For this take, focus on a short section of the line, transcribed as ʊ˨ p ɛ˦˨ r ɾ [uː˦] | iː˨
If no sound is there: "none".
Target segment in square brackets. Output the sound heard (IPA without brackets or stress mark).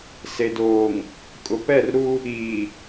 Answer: u˦